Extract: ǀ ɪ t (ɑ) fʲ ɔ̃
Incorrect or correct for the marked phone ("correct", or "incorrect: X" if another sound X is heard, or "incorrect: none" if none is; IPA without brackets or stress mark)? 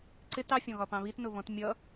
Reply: correct